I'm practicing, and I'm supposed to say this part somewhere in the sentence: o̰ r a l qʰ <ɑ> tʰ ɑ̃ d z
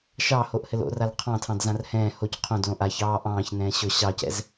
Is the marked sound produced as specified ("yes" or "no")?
no